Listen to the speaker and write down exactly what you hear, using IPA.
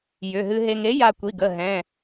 jʏ˩˧˩ɦɨ˧ɦe˧ŋ e˩˥ ja˧kʷi˩˧˩ɡə˩˧˩ ɦɛ̃˩˧˩

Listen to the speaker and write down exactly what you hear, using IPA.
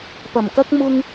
pɐ˨˩mkɐ˥k̚ mʊ˥ŋ

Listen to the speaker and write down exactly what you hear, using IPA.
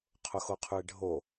qʰʊxoqʰʉe̯ɖʱo

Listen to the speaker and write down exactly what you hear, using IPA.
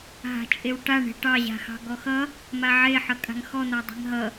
ɦa̤t͡ʃʼewʈa ɳe̤ʈɑ ʑa̤xɑ̤ɡɔxʌ | maʕe ħʌkʼa̤ŋxɔ n̪adˤe̤ŋɦʌ

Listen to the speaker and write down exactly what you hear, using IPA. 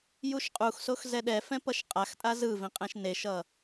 juʃqʼuxsox zɛɗɛfɛ̃ pʌʃqʼaxtʼa zɯvĩ qʼɛ̃ʃneʃʌ

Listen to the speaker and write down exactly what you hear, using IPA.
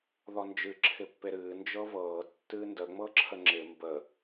ðɔnd͡ʒɨ ǁʰɪpːeɾɨː nd͡ʒɤvɤː tːɨːndə ŋ͡mɤǁʰəŋ͡ǁɪ mbə

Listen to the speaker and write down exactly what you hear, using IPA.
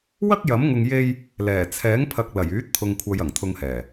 wɐ˥k̚jɐ˨˥mŋʊ˧ŋ je˥j | lɛː˨˩t͡sʰɛː˨˥ŋpʰɐ˨k̚ lɐ˨˩jyː˨˥t̚t̪ʰʊ˨ŋkʷʰɐ˨j ɐ˨˩ŋt̪ʰʊ˧ŋhɛː˨˩

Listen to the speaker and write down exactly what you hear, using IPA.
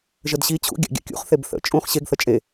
ʒədɕi t͡ɕʰṵ ɡʲa̰ɡʲa̰kʲṵχ θebθə̰ t͡ʃʼũχ ɕeɡ θət͡ʃʼe

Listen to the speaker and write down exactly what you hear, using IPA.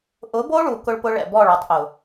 ʔʊ˨˦bo˦ɭu˨ kʊ˦ɭpʊ˦ ɭɛ̰˨bɔ˦˨ɭ ɔ˦˨tˤʔʊ˨

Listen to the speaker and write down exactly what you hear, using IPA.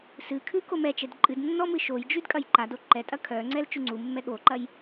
sɨkʰʉ komɛt͡ʃɛd ǃʼɨdnːɔ mɨʃojd͡ʒʉd kʼɐjǃado ǃɛtʼɐ kʰœŋ͡ǀɛl t͡ʃʉŋ͡ǀumːɛ ɠoǃɐj

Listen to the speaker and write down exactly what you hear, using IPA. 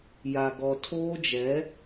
ja˨ ɡɔ˨tʰoː˦d͡ʒɛ˨˦

